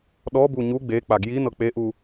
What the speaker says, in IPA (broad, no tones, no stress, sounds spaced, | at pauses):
ɗ ɔ b u ɲ u ɡ͡b e k͡p a ɡ j i n ɤ k͡p e ʔ u